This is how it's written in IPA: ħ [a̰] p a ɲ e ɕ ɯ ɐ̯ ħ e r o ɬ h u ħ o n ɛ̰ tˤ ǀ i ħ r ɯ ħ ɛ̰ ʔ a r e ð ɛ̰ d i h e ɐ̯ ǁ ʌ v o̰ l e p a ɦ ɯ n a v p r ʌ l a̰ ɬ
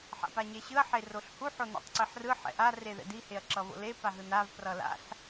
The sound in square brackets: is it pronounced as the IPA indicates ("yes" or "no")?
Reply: yes